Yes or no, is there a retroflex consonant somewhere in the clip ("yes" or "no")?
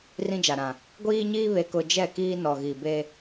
no